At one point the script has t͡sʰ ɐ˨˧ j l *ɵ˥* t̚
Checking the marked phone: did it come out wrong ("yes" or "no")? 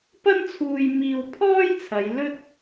no